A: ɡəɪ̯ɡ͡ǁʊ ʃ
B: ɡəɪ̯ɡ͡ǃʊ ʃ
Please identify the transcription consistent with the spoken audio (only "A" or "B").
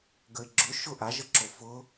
A